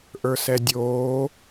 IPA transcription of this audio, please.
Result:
ʔ ə˞ s ɛ dʲ oː

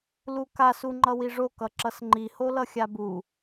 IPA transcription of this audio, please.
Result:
l u k a s u ŋ͡ǃ ʌ w i ʐ o k ʌ ǁ ʌ s ŋ͡ǃ i h o l ʌ xʲ a b u

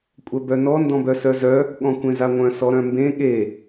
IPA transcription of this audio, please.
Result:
kʷʼ œ b œ n ɔ n d ɔ̃ b œ s œ z œ | ɠ ɔ̃ kʷ ẽ z a ŋʷ œ̃ s ɔ ɾ œ̃ m b ẽ ɠ e

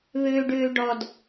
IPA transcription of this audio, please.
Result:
β øː ɖ øː ɖ ɔ d

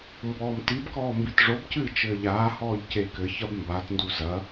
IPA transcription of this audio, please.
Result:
m b ɔː m t i b k ɔː m b i t ʐ o b c ɨː t͡ʃ ɘː ʎ aː h ɔː ʎ c e k ɘ ç ɐ b m b a t n d u z ɐ

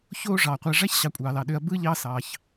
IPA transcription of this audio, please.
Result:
ç oː˥ ʐ ɑː˩ qʷ æ˨ ʐ æ˥ ç ɕ ɑ˨ kʷʼ ɑː˩ l ɑ˩ ɗ ø˨ ɐ̯ b ɯː˥ ʎ ɑ˦ s ɑː˩ ç

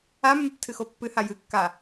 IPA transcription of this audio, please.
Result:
a mː ɨ p tʰ ɨ x o pː ɨ h a j ɨ kː a

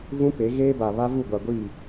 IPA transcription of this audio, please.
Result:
v ũ˦ p e˨˦ ɣ eː˦ b a˨ β a˦ v u˦˨ ɡʷ a˨ ɡʷ i˦˨

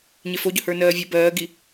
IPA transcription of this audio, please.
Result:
ɲ e f o ɟ ɵ h ə˞ n ɜː vʲ ə b ɜː ɡ i

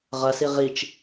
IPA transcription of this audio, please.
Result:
ʁ ɐ s i ʁ i t͡ʃ

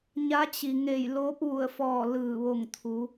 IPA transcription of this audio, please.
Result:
ɲ a˧˥ t͡ɕ i˩ ŋ e˧˩ j l oː˧˥ p̚ ʋ u˧˩ ə̯ f ɔː˧˩ l ɯː˧˩ ʋ o˧˩ ŋ t̪ʰ u˩˧

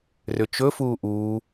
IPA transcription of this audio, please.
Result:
r ʏ t͡ʃ ɵ f uː ʔ uː

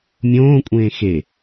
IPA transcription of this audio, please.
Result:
mʲ õː kʷʼ ẽː x e

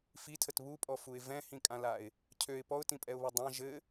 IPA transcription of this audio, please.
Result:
f i tʰ ə t β u pʼ ɔ f u ɪ̯ v ɛ̃ h ĩ kʼ ã l a ɪ̯ | cʰ ø ɪ̯ p ɔ ʊ̯ t ĩ pʼ ɛ ʊ̯ β ɔ dˤ ã ʒ ɘ

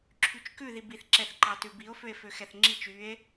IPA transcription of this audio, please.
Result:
ǁʰ y t͡ʃ k ʉ ð i b i θ ǁ ɛ θ ǃ ɑ t ʉ b i o̯ f ø e̯ f ø x ɛ θ ŋ͡ǁ i t͡ʃ y e̯

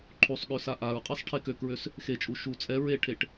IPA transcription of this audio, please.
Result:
ǃʰ u sˤ ɠ ø s a ʔ a ɹ qʼ ɛ sˤ ʈʰ e k ø k ɹ ø s | x e t͡ʃʼ u ʃ u t͡sʼ ɛ ɹ e ʈʰ e ʈ

